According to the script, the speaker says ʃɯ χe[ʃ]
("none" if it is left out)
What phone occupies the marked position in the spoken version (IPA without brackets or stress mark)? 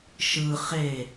none